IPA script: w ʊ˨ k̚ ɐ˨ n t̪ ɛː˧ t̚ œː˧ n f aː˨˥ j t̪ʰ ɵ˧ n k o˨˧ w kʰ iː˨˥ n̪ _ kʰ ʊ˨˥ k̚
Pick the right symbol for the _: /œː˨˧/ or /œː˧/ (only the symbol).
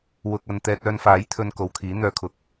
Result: œː˨˧